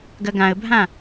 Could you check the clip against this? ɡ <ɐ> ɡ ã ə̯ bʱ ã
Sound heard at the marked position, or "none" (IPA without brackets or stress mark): ɐ